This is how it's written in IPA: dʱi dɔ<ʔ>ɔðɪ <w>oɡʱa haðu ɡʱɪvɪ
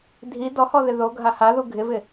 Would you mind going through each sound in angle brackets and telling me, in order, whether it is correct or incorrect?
incorrect, incorrect

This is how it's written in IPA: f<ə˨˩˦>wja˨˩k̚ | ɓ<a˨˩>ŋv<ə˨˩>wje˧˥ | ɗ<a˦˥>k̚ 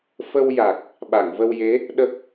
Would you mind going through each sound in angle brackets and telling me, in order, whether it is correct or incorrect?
incorrect, incorrect, incorrect, incorrect

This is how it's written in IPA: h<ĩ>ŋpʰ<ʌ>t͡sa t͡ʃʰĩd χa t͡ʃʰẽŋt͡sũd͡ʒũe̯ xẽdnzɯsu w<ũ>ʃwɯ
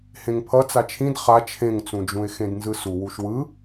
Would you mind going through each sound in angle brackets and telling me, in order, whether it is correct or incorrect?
incorrect, correct, incorrect

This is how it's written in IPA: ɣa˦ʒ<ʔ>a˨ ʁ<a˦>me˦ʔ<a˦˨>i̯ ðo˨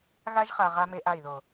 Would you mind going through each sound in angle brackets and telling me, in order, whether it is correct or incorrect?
incorrect, correct, correct

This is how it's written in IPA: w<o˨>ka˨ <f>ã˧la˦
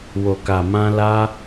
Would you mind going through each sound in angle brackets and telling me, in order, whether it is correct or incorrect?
correct, incorrect

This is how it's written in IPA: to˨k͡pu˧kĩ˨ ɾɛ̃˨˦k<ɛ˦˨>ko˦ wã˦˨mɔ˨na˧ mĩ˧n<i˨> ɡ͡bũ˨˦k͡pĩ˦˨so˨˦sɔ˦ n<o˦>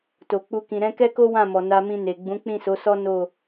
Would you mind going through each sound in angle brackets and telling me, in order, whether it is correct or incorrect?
incorrect, incorrect, incorrect

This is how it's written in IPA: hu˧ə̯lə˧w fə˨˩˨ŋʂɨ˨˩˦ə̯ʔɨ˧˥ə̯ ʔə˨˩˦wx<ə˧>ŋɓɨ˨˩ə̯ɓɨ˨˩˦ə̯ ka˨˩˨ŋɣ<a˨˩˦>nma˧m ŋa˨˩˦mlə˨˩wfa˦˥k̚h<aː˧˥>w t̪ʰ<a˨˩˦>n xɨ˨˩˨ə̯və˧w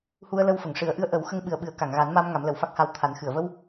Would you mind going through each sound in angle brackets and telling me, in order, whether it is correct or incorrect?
correct, correct, incorrect, correct

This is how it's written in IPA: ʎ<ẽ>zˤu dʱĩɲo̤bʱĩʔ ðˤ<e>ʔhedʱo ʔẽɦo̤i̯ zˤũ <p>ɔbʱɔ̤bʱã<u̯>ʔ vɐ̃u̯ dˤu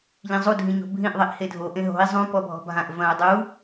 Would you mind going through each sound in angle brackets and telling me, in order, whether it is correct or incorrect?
incorrect, incorrect, correct, incorrect

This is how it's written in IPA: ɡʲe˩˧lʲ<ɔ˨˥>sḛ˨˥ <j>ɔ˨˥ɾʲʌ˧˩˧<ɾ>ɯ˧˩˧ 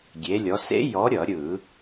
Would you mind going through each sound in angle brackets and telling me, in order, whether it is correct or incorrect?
incorrect, correct, incorrect

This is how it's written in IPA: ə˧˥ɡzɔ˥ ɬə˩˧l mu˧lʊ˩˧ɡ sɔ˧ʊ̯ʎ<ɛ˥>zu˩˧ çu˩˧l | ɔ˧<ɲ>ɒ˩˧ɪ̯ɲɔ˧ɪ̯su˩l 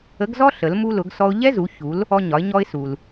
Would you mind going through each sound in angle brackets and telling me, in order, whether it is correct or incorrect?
correct, correct

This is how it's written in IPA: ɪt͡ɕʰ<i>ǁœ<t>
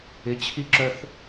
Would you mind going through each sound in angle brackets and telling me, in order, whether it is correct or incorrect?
correct, incorrect

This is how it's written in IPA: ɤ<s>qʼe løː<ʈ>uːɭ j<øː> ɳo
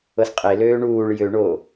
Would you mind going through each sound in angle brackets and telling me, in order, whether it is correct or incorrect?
correct, incorrect, incorrect

